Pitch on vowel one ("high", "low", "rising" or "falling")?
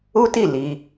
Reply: high